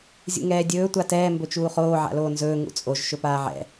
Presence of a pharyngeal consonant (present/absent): present